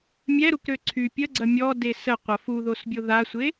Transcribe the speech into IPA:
mʲ ɛ ɾ u k ɾ ø ǀʰ y pʲ ə ɡ͡ǀ ɐ mʲ ɔ d e s ə qʷ ɐ f u ð o s bʲ o ð a sʷ e

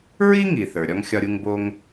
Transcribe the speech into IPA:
ɹ i˥ ŋ i˩ θ ə˞˩ ɾʲ ɒ˥ ŋ xʲ ɒ˥ ɾʲ u˥ ŋ b o˥ ŋ

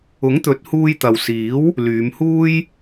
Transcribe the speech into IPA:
ʊ˨˥ ŋ t̪ ɵ˨˥ t̚ h uː˧ j t̪ ɐ˨ w s iː˨˥ w | l yː˨˧ m h uː˥ j

